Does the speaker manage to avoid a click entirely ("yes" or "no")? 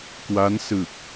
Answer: yes